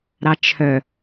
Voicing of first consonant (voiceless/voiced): voiced